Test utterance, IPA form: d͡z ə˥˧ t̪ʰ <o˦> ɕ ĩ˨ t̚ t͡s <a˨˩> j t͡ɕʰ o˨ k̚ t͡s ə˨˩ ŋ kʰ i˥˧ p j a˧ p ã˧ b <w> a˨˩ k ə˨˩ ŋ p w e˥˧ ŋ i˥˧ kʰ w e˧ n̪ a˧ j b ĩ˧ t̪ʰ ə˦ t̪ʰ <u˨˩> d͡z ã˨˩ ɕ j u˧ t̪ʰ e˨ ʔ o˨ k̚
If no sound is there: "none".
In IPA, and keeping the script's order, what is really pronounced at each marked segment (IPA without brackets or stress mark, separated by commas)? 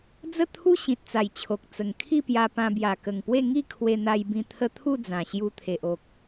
u˦, a˨˩, j, u˥˧